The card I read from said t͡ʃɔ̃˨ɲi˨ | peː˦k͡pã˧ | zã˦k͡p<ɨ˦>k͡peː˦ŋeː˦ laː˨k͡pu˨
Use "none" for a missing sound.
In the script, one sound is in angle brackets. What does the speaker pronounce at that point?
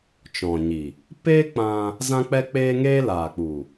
ɛ˦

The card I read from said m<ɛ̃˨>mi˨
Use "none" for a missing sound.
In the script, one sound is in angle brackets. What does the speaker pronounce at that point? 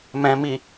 ɛ̃˨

